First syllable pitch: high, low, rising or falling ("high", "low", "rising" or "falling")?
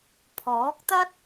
rising